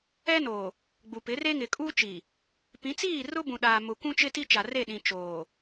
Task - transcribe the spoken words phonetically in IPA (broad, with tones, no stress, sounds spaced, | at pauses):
ɛ˦ n oː˨ | ɡ͡b u˨ p ɪ˨˦ r e˦ ŋ ɪ˨ kʼ uː˦ t͡ʃ i˨ | p ĩ˨˦ t͡s iː˦˨ r ʊ˦ b ũ˨ ɗ aː˨ m ʊ˨ kʷ ũ˦ t͡ʃ ɪ˦ t i˦ t͡ʃ a˨ r e˦˨ ɗ ĩ˨ t͡ʃ oː˨